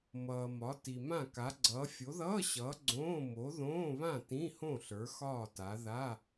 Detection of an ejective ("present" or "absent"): absent